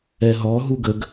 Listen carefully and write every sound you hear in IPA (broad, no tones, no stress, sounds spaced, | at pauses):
ɛ ɦ ɔ ɦ u ɡ ə ɡ